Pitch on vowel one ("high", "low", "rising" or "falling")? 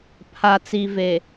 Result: low